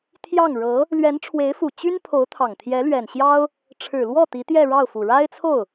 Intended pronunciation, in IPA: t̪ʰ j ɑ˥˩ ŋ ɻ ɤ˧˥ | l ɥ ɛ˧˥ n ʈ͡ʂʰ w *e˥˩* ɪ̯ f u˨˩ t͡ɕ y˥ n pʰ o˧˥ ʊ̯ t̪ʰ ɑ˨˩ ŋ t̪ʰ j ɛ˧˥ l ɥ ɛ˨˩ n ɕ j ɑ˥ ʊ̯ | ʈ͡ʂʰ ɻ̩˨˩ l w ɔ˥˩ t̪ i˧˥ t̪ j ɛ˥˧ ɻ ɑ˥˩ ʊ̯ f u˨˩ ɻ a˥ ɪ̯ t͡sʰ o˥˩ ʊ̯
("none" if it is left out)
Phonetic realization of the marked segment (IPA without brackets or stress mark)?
e˧˥